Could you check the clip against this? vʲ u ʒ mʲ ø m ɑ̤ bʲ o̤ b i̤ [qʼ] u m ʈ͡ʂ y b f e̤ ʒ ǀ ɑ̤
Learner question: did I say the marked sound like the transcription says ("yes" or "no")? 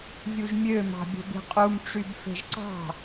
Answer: yes